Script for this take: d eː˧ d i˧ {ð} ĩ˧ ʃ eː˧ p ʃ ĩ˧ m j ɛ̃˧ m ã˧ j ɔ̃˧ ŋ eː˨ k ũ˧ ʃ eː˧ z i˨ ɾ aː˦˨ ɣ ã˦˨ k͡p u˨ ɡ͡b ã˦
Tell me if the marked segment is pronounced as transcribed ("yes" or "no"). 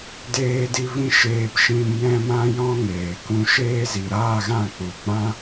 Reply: no